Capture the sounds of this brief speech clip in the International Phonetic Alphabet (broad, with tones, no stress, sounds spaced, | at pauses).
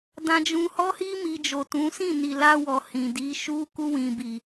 d ã˧ d͡ʒ ũ˧ h ɔ˦ h i˦ m i˧ d͡ʒ o˨ t ũ˨˦ s ĩ˦˨ n i˨ l a˧ w ɔ˨ h ĩ˨ d i˨˦ ʃ u˧ k u˧ w ĩ˨ b i˨